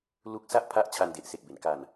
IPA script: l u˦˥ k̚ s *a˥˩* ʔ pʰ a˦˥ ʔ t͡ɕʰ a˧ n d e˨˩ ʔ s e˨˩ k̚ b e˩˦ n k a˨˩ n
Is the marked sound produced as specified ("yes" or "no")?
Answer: yes